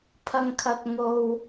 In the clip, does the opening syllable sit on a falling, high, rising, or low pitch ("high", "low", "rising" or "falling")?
low